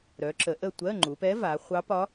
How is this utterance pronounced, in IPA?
ɾœ˩˧ǁə˩˧ ʔə˦˨ tʷɜ˧˥˧ŋ͡ǃu˩˧pɛ˧˥va˩˧ χʷɑ˧˥pɒ˧˥

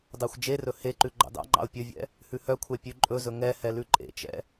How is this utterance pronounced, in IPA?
dɑxʷd͡ʒerɵ heǃʉ ɡ͡ǃɑ̰dɑ̰ŋ͡ǃɑ̰ʊ̯ pʲɵvʲɛ̰ | hʉhœkʷʰɛ pʲʉǃʼɵzɵ ŋɛhɛ lʉǃʼḛt͡ʃɛ̰

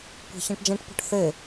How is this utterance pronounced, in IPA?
kʷa̤çãʈd͡ʒɛ̃ʈpɔ̤ʈ θe

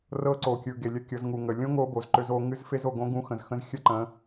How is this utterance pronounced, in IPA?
rɤ˦ǀo˨kʲɯ˨ ɡe˨lʲə˦kʲɤ˨˦z ŋu˨ŋə˨ lʲõ˦ ŋo˦bo˨z ǃø˦zo˦ ŋɨ˦zfe˦z o˨ɡõ˦ ɡũ˦ xə̃˨zxə̃˦z xʲə˦ǃə̃˨˦

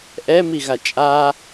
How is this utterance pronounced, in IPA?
ʔɛmiɣa t͡ʃʼa

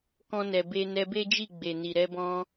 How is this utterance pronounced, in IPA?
kɔ̃˧nɛ˨be˧ nɛ˧be˦d͡ʒi˦˨ ɡ͡be˨ni˨ɾɛ˧bɔ̃˧

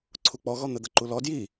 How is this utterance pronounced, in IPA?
ǀʰuk͡pɔɣɔ n̪əd̪əǃulɔ dji

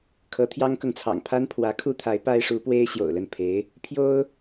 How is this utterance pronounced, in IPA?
kʰɤ˧˥t̪ʰjɑ˥ŋkɤ˨ŋt͡sʰɑ̰˨˩ŋ pʰa˥npʰwä˧˥kʰu˥t̪ʰa˧˥ɪ̯ pa˥ɪ̯ʂu˧˥pwe˥ɪ̯ ɕjo̰˨˩ʊ̯ lə˥˩npʰe˧˥ɪ̯ | pʰjo˥ʊ̯

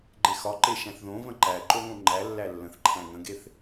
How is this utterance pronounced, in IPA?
ɡ͡ǃexɒ ǃeʃæ̃θðõ və̃ǃæ ǃoŋõŋ͡ǃæ lːælːə̃θǃʰæ̃ ŋə̃ɡeθ

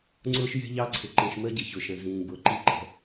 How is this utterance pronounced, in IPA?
ŋ͡ǀʊː˦ʃ jɛ̤˦ʎɑ˦ǀʰɪ˨ ǃĩ˨ʃ məː˦ɟɪ˨ çʊ˨ʃə̃˨zĩː˨ bʊː˨ǃi˦˨ ǃɛ̤˦

